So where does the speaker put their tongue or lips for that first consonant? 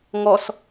velum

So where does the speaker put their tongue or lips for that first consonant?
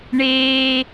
retroflex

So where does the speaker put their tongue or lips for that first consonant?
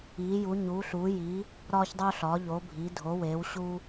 palate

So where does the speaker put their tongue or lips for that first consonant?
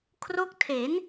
velum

